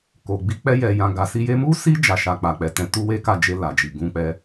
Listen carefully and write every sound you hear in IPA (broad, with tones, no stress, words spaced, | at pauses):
ko˨ɡ͡bi˧ k͡pɛ˧jɛ˨jã˨ ɡa˨si˧je˦ mu˦si˦ d͡ʒa˦˨ʃa˧ k͡pa˨k͡pɛ˨tɛ̃˧ tu˦we˦ka˦˨d͡ʒe˧ la˨d͡ʒi˨ ɡũ˧k͡pɛ˦